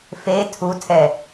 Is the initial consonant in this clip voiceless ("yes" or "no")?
yes